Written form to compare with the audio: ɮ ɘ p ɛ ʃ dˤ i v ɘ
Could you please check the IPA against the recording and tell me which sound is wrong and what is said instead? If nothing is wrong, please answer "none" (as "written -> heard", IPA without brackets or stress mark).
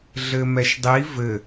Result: p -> m